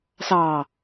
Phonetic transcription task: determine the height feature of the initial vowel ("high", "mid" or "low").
low